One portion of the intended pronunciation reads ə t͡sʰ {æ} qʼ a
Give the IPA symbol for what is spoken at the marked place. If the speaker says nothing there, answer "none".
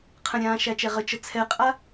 ɛ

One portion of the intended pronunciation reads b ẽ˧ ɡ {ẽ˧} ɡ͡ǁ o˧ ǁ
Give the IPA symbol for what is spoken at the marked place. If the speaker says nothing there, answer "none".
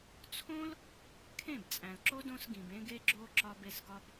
e˧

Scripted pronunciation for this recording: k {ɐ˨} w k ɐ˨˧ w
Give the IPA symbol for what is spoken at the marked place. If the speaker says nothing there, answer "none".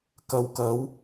ɐ˨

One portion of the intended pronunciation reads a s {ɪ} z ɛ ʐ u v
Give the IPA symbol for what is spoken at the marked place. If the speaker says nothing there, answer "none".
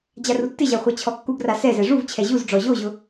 ɛ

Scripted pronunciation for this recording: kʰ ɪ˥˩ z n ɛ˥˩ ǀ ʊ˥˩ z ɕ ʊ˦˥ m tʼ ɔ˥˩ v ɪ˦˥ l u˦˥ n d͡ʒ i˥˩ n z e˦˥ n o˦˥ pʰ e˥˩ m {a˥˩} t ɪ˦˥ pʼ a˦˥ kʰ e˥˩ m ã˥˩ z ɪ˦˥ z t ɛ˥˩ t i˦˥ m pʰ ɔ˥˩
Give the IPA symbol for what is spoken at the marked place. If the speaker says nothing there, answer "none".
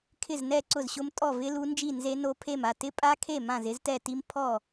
a˥˩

